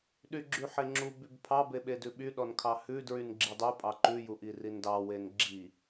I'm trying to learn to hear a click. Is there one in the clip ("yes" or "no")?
yes